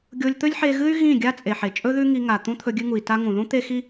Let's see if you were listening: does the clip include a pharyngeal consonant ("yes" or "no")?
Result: yes